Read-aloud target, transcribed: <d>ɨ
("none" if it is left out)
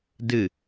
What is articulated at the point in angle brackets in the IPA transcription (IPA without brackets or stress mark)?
d